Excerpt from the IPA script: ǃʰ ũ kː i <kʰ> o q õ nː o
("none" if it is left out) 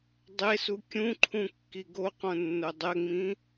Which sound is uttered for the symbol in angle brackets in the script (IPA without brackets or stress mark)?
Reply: ɡ